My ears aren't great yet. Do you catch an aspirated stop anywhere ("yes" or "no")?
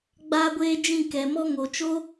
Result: no